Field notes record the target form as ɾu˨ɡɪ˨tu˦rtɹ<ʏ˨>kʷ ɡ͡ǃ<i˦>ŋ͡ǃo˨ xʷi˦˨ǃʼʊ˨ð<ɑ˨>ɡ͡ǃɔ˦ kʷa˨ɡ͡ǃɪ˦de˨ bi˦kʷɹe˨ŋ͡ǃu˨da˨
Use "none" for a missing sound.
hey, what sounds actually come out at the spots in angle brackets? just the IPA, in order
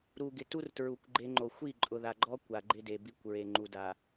u˨, e˦, a˨

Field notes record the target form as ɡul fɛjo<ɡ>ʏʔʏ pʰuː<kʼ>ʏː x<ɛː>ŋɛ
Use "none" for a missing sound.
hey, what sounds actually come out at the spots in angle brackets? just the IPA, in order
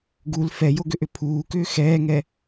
ɡ, k, ɛː

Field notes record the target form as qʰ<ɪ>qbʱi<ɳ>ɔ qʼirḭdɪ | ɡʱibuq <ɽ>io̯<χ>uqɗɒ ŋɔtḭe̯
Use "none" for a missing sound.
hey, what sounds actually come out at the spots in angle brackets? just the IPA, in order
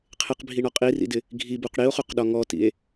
ɪ, ɳ, ɽ, χ

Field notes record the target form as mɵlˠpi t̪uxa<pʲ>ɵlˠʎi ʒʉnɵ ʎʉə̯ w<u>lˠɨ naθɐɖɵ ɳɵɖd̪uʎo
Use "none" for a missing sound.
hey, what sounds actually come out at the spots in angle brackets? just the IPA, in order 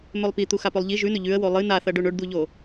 p, o

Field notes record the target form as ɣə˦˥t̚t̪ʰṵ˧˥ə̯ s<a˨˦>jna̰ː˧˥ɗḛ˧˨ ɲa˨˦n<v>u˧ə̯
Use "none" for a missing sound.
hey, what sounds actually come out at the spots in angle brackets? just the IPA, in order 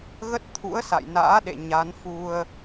a̰˧˨, f

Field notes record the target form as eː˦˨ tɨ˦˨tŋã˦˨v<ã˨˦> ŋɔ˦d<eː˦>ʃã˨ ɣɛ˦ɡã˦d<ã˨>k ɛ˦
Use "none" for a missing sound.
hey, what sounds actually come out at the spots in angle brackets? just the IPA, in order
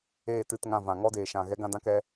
ã˨, eː˨, ã˦

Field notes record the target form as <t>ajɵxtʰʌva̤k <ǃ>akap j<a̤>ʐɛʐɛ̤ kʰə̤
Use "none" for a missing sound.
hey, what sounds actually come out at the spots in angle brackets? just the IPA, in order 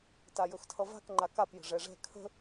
t, ŋ͡ǃ, ə̤

